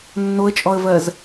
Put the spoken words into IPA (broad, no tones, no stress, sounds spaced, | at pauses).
nː o ə̯ t͡ʃʼ ɔ ə̯ v ɜ z